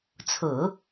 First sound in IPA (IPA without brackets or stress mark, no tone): t͡sʰ